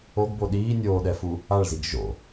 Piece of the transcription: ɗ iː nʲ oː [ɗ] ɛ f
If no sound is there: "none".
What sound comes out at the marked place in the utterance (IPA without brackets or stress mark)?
ɗ